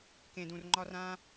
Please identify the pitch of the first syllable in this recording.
low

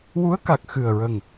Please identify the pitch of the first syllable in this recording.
rising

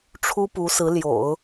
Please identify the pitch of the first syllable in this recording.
high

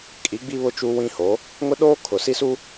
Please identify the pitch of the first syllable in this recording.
rising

